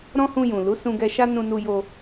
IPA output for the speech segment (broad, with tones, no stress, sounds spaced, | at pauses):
ɾ ɔ̃˦ h ũ˧ j ũ˨ l u˨˦ s ũ˧ ɡ ɛ˧ ʃ a˦ n ũ˧ n u˧ j o˧